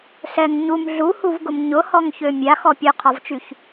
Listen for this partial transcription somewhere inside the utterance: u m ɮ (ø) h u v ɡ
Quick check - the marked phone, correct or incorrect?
incorrect